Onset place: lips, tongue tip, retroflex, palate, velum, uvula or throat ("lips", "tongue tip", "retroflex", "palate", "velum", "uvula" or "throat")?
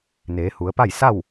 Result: tongue tip